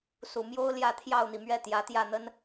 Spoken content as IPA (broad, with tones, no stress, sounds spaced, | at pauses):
s u˨˩ m j o˥ ʊ̯ l j ä˥˧ t̪ʰ j ɑ˥˩ ʊ̯ n̪ i˩ m ɥ ɛ˥˩ t̪ j ä˧˥ t̪ j ä˥˩ n̪ ə˥ n